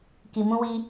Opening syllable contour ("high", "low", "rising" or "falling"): low